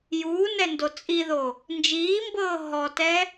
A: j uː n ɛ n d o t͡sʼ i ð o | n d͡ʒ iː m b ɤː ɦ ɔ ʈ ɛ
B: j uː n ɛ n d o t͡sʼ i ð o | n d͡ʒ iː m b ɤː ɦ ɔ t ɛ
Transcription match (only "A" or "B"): B